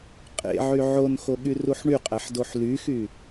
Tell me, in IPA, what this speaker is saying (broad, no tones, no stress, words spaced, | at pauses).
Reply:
qʼḛʕy ʕonxoɠyruħ ɳyqʼæħdoħ lyxy